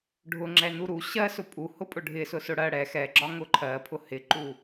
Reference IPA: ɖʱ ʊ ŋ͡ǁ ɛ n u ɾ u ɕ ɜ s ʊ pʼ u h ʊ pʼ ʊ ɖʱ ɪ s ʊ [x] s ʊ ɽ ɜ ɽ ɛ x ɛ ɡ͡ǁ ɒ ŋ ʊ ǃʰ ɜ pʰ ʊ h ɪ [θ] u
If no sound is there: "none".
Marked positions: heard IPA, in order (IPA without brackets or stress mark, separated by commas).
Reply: none, ǃ